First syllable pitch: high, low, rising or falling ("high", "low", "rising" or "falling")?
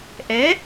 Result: rising